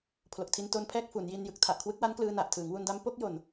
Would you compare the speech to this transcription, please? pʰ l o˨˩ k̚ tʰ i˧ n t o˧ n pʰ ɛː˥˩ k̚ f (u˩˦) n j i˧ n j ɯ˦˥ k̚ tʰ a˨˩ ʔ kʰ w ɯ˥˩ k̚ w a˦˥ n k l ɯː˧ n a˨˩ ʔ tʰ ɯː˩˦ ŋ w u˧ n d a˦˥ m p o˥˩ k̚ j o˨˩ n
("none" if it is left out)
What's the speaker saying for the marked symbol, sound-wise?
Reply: u˩˦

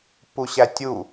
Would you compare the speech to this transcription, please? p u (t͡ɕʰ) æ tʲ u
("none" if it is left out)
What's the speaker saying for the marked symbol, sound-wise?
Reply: ɕ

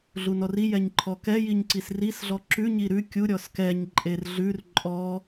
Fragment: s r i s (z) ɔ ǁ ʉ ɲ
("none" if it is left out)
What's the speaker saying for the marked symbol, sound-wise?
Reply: ɮ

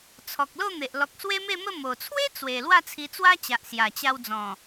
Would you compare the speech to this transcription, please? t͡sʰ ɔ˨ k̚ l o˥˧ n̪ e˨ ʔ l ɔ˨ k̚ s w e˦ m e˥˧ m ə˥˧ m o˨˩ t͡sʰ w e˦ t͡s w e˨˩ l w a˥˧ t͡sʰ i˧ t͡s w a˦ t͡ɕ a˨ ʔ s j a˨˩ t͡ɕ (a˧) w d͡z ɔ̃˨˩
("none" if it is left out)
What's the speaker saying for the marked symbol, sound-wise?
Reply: a˧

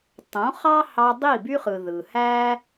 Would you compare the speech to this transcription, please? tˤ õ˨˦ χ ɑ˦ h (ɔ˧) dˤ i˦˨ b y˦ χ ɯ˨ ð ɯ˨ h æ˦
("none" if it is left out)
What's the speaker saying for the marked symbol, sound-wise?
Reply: ɑ˧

